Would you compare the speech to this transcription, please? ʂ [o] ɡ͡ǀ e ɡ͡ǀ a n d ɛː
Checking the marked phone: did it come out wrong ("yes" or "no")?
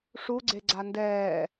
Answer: yes